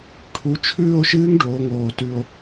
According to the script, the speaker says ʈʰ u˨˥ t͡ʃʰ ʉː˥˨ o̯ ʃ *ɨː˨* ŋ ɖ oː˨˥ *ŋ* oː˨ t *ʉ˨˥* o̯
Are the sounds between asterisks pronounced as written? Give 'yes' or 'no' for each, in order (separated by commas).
no, yes, no